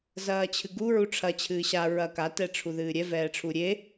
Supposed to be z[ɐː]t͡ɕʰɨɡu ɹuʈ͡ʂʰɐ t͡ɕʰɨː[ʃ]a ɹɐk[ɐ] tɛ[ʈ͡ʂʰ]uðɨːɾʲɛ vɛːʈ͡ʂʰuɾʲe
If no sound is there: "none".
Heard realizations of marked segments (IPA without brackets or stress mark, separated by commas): ɐː, ɕ, a, ʈ͡ʂʰ